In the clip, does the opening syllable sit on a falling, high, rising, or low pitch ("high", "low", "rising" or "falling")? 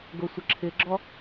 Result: low